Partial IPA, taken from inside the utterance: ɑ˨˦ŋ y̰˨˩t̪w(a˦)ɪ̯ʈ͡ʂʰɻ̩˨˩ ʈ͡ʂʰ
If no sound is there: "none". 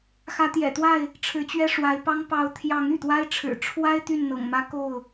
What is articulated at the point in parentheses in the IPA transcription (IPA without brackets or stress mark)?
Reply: a˦